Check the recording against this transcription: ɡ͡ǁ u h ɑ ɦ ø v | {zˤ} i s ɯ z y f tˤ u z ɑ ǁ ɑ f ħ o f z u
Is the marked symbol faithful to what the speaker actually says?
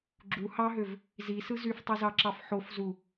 no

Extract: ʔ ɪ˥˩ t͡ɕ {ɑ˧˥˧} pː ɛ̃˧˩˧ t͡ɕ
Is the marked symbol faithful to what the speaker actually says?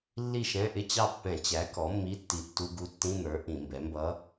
no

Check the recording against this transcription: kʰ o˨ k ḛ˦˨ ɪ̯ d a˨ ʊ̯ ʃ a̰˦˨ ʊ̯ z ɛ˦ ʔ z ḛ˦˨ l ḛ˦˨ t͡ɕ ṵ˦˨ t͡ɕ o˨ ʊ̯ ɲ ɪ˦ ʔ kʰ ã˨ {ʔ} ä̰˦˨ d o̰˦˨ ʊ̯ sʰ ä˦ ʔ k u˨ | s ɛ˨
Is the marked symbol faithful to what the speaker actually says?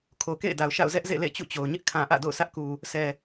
yes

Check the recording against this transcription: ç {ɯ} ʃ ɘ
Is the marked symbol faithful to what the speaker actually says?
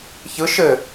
yes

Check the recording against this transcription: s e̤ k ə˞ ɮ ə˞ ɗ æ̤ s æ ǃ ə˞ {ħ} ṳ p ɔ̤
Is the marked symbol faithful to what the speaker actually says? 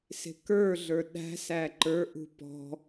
no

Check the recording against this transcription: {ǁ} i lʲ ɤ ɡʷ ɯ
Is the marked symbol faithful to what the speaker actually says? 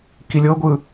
no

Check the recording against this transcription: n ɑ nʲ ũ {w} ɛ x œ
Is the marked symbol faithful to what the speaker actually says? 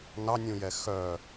no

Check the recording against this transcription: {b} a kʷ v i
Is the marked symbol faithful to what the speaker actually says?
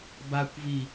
yes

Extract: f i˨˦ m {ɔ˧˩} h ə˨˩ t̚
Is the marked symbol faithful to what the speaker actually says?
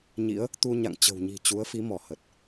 yes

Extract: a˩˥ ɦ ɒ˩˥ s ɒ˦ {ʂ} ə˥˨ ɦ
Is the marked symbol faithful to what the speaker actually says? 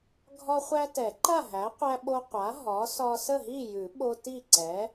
no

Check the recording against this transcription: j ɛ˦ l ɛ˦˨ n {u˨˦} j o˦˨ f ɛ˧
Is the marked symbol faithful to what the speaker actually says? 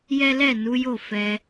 yes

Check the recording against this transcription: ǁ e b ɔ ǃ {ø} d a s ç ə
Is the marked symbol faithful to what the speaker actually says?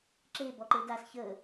no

